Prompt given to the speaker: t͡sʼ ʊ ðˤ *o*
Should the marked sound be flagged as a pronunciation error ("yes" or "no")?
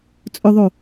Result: no